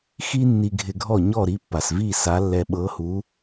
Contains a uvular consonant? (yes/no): no